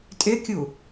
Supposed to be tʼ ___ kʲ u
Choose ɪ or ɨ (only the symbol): ɪ